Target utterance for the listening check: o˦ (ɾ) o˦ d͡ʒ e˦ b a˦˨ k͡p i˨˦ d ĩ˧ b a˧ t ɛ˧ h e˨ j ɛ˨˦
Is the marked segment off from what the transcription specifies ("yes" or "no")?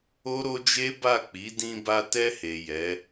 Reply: no